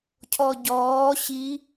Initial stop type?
aspirated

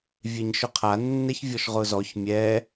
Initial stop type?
aspirated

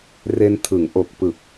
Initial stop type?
aspirated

